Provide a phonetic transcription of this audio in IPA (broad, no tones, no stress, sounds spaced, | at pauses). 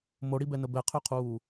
m o ɽ i b ɛ n ə b ɛ qʰ ø qʰ uː